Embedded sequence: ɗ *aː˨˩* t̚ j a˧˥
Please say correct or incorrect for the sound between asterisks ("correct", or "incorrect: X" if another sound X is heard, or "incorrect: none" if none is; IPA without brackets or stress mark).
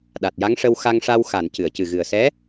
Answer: incorrect: a˨˩